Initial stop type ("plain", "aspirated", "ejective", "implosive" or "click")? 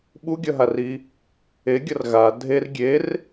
implosive